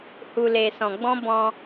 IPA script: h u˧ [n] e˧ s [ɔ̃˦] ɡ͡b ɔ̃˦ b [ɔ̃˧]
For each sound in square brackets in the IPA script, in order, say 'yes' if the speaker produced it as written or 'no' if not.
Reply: no, no, yes

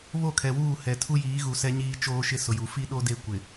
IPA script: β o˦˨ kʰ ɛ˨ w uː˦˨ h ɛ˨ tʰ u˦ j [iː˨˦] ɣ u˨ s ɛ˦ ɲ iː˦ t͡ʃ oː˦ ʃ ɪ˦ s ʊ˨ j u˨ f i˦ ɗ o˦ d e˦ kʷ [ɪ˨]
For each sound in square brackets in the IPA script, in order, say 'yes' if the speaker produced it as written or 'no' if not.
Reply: yes, yes

